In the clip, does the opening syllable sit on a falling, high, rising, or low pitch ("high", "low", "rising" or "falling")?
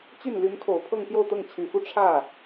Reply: falling